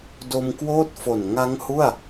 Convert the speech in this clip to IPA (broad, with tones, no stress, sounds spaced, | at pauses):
d o˧ m k w oː˥˩ t̚ f o˨˩ n ŋ a˦˥ ŋ h u˥˩ a̯